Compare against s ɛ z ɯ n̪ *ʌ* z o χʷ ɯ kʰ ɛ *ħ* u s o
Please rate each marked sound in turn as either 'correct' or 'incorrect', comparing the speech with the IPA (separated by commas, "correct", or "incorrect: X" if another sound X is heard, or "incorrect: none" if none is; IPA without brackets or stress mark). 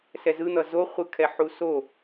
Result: correct, correct